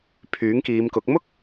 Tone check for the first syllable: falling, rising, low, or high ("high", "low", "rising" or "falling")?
rising